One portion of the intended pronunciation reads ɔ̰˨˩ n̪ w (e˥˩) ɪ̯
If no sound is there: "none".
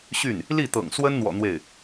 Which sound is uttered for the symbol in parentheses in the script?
e˥˩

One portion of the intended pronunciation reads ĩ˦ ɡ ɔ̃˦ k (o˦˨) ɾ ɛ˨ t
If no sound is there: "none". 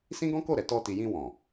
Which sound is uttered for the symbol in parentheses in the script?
o˦˨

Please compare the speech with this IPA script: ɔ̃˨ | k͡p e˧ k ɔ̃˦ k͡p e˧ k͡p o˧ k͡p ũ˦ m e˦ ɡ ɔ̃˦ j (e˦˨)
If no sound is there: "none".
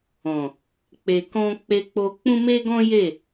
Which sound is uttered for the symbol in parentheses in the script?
e˦˨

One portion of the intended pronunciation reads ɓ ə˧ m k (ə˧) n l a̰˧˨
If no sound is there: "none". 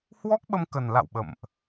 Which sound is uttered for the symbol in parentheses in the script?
ə˨˩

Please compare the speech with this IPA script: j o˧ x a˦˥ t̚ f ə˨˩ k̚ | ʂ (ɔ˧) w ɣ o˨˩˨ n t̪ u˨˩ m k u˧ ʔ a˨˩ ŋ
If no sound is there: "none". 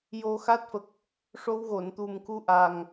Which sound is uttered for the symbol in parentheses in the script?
o˧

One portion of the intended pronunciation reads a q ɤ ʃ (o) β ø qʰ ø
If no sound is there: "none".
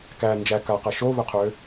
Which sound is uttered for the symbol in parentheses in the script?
o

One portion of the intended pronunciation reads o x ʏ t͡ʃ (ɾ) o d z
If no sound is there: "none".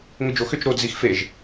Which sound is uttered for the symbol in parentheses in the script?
ɾ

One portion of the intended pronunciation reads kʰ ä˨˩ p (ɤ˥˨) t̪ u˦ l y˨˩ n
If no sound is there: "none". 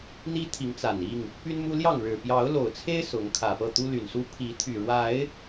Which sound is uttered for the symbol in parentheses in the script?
ɤ˥˨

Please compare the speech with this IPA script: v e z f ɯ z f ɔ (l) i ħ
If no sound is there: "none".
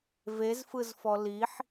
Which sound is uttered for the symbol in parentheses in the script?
l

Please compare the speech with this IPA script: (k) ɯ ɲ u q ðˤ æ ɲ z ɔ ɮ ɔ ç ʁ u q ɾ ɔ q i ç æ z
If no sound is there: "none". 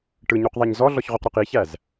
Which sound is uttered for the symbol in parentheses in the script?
ʈ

